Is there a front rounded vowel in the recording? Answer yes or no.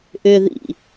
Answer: yes